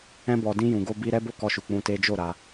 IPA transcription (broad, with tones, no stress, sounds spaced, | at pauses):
ɛ̃˧ b ɔ˨ d ĩ˧ j ũ˨ ɡ o˧ b i˧ ɾ ɛ˦ b o˦˨ k ɔ˧ ʃ u˨ k͡p ũ˧ t e˦ d͡ʒ o˦˨ ɾ a˧